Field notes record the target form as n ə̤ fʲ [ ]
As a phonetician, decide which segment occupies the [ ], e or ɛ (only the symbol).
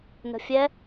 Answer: ɛ